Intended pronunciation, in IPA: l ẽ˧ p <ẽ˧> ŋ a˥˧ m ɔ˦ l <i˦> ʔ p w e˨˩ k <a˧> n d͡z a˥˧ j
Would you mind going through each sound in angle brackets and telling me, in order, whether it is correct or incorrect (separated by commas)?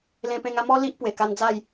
correct, correct, correct